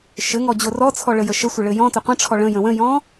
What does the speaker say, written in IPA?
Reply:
ʃɘŋɔ d͡ʑorɔt͡sʰɔ ɭəjəʃəsʷə ɭɘjɔ̃tə qʷə̃ʈ͡ʂʰɔ ɭə̃jə̃ wə̃jɔ̃

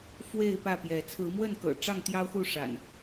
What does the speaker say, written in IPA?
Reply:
fwe˥˨ɪ̯ pä˥˨pjɛ˨˦ t͡sʰɹ̩˨˦mwə˥˨nkɤ̰˨˩ ʈ͡ʂɑ˥˨ŋt̪jɑ˦ʊ̯xu˥˨ ʂa̰˨˩n

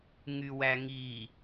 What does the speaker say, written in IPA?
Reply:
ŋywæŋi

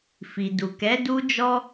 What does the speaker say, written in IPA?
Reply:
fi˨du˨ kɛ˨˦ du˦d͡ʒɔ˦

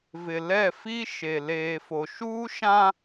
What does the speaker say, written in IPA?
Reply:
vɪ˨lɛ˦˨fi˦ ʃe˨ leː˨fo˨ ʃuː˦ʃã˦

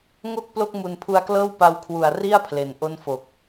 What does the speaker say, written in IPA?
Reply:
ŋo˥˩k̚ plo˥˩k̚mu˨˩npʰu˧a̯klɤː˥˩w pa˧wkʰwu˨˩a̯ri˥˩a̯ pʰle˨˩nʔo˥˩nfo˨˩k̚

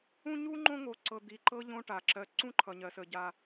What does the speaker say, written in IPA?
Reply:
ũ˦ɲu˥ŋ͡ǃõ˦ ŋo˨ǀɤ˨d̪i˩ ǃɤ˥ʎõ˦ ʈa˩ǁɜ˨ ǀũ˥ǃʰʌ˩ɲɜ˩ sə˩ɟa˨

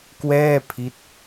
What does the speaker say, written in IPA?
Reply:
kwɛː˥˩ pʰi˦˥t̚

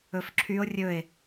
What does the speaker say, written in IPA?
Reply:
ɵfǁʰyo̯ rʲɵe̯

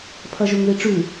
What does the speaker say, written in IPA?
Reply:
pʰɐʒɵŋðiʈ͡ʂʉ

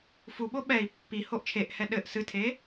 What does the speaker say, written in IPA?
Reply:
fuɓo ɓɛi̯ pːi hoʔt͡ʃʰeʔhɛ ɗɘʔ sɨtʰe

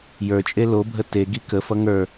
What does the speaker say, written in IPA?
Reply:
jə˞t͡ʃʼe lobʱə teɡi kəfʌ ŋə˞

